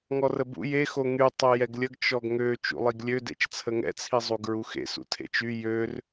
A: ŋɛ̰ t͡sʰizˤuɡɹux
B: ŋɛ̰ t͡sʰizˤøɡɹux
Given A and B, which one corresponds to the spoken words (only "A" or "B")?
A